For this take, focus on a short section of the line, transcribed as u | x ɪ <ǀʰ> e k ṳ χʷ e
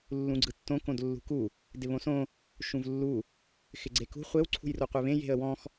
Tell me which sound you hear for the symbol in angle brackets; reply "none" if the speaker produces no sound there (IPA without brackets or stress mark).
ɡ͡ǀ